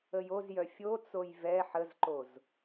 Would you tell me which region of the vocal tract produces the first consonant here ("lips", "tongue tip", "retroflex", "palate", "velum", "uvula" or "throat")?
palate